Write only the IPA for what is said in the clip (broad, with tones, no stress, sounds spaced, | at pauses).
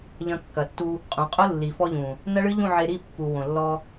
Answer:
ʎ ɐ̃˧ kː ɐ˨ tː u˧ | qʼ ũ˨ qʼ ʊ˦ lː i˨ f ɔ˧ ʎ ũ˨ | n ɐ˦ ɭ ɨ˦ ʎ ũ˦˨ ʕ e˧ ɾ i˦˨ pː u˨ w õ˨ lː ɔ˧